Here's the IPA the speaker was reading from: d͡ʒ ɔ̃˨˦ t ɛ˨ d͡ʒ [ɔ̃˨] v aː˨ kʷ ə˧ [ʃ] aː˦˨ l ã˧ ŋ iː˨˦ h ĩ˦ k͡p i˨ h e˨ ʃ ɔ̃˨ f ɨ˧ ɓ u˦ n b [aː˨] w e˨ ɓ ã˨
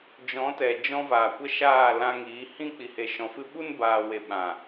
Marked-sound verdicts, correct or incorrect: incorrect: ɔ̃˧, correct, correct

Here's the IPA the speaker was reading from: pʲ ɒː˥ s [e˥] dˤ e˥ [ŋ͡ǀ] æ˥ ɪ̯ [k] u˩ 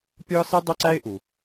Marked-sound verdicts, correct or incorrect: correct, incorrect: ǀ, incorrect: ʔ

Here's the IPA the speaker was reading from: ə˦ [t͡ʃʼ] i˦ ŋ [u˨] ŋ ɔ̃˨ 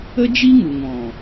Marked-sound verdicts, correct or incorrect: incorrect: d͡ʒ, correct

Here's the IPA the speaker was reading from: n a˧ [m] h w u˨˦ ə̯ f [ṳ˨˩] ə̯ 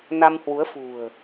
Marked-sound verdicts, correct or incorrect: correct, correct

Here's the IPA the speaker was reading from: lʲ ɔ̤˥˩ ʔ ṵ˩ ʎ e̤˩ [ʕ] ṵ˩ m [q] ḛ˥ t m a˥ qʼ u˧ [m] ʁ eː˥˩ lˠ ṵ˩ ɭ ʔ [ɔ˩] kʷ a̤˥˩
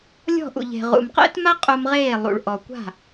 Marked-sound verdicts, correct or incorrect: incorrect: ʁ, correct, correct, correct

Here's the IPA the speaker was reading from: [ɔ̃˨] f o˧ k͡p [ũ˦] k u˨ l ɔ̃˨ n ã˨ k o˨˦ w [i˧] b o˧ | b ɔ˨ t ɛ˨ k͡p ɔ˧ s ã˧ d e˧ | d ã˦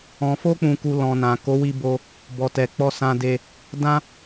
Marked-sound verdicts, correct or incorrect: correct, incorrect: ũ˨, correct

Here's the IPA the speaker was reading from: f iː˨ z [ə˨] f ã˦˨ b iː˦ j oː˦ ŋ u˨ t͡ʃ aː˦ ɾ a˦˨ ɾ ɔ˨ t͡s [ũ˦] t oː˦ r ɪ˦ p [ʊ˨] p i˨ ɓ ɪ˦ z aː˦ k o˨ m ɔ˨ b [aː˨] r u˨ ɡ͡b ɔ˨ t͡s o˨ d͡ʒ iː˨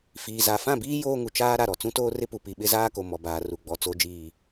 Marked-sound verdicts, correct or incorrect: incorrect: a˨, correct, incorrect: u˨, correct

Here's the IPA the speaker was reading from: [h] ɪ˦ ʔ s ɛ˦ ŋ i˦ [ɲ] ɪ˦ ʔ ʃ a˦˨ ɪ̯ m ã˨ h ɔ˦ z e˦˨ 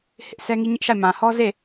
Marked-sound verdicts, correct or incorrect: correct, correct

